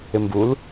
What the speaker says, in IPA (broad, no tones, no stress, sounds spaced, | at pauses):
ɪ m b u l